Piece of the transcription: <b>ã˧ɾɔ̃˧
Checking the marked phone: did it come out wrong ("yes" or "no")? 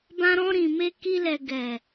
no